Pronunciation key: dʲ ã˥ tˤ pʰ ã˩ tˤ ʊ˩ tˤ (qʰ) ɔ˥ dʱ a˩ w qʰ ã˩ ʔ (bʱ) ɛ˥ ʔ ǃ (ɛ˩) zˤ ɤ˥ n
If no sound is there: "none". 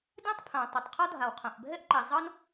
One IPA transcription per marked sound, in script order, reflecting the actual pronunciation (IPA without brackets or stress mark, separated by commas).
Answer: qʰ, bʱ, ɛ˩